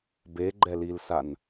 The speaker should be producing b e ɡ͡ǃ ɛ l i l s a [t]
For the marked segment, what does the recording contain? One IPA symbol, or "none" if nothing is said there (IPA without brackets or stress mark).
n